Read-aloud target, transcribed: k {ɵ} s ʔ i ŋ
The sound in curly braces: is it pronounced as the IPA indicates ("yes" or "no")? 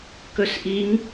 yes